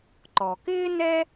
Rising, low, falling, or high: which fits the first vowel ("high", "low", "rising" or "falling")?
low